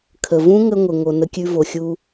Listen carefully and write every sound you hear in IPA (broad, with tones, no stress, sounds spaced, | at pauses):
kʰ ə˩ v ũ˥ ŋ ə˥ ŋʷ ɘ˩ ŋ o˩ n ə˧ kʲ ʉ˧ v o˩ xʲ u˧